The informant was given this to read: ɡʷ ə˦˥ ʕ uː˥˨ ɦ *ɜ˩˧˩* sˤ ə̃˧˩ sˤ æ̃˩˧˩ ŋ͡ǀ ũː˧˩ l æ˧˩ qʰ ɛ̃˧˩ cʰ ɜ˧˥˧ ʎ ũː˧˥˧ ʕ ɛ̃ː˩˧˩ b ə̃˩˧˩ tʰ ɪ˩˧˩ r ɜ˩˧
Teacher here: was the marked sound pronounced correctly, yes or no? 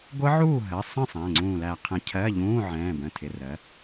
yes